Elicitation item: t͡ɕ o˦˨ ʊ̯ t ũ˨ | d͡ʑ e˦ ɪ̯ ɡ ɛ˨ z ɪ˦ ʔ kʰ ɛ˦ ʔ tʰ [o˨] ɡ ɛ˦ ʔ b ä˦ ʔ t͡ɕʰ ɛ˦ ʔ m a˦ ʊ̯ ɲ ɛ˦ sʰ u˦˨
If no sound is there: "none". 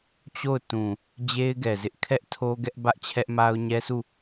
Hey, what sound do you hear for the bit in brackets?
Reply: o˦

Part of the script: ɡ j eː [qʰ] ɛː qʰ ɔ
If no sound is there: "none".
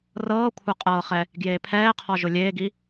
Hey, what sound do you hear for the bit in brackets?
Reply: pʰ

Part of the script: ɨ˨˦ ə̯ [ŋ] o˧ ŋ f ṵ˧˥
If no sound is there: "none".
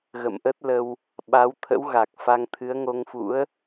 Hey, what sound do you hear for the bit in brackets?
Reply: ŋ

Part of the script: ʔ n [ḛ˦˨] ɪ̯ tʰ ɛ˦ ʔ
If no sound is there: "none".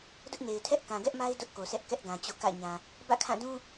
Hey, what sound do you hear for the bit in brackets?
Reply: e˨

